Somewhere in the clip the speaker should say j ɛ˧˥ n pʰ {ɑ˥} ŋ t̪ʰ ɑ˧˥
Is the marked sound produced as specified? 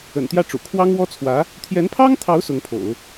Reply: yes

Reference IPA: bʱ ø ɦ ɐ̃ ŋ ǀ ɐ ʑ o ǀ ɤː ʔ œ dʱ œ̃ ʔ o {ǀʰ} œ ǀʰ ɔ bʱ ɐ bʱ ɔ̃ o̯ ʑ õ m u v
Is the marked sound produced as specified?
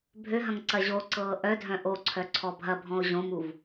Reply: yes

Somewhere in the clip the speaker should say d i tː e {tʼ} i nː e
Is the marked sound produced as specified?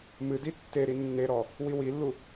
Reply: no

